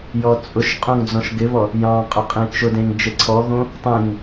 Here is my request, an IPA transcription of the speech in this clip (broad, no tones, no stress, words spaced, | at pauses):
jɔt͡sʼʊʃqʼõŋ d͡zɔ̃ʃɡɪβɔ | jɑ̃qʼʊ qʼẽt͡ʃʊdẽŋ d͡ʒeǀʰɔɣõ | tˤẽŋ